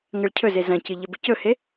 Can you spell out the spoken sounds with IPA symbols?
ŋ ɐ ɭ cʰ ɵ z e z ɐ̃ c ɨ ʎ ɐ b ɨ c ɵ h e

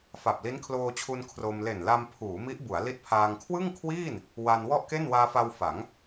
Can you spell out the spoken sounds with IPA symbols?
f a˨˩ p̚ l i˦˥ n kʰ l oː˧ t͡ɕʰ u˧ n kʰ r o˧ m l e˨˩ n l a˧ m pʰ uː˩˦ m i˦˥ ʔ b u˩˦ a̯ l i˦˥ t̚ pʰ aː˧ ŋ kʰ w ɯ˥˩ ŋ kʰ w iː˥˩ n | w a˧ n w ɔ˥˩ ʔ k e˥˩ n w aː˧ f a˧ w f a˩˦ ŋ

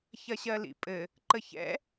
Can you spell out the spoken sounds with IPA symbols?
ç ɐ ɕ ɜ l ḭ pʼ ɘ | ǃ ə ç ɛ̰

